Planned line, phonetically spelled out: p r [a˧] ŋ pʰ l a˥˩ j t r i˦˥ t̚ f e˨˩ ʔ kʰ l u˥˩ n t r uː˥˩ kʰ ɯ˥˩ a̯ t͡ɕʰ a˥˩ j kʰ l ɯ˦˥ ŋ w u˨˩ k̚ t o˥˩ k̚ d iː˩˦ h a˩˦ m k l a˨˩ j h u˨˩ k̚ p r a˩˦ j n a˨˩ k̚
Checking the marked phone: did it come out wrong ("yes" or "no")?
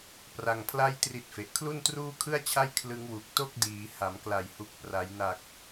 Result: no